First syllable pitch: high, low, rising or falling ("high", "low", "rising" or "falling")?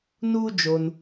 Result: high